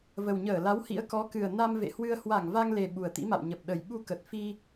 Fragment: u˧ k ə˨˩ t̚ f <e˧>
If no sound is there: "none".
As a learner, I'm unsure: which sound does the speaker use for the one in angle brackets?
i˧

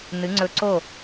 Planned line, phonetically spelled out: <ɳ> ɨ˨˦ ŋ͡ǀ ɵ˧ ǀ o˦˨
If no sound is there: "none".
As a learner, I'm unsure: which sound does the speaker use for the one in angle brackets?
n̪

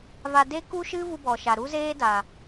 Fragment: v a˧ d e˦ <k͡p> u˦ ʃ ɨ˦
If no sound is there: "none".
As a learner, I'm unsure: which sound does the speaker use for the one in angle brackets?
k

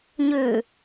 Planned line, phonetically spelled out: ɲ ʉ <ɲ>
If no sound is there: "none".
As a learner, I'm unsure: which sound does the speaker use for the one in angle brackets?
none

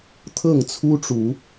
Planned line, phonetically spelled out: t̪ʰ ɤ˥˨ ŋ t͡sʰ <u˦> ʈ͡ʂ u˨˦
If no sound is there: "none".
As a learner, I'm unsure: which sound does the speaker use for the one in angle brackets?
u˦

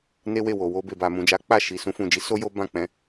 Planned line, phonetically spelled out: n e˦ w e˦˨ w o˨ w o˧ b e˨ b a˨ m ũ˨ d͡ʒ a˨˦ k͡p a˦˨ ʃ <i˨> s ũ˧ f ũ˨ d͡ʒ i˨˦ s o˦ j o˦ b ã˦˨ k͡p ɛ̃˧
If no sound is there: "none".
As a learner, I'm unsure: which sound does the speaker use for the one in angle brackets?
i˨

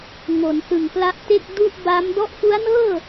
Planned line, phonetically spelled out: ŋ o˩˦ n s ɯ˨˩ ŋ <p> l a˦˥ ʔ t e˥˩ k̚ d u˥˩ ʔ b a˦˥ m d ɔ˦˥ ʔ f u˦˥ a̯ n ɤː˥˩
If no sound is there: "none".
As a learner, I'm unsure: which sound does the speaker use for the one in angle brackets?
p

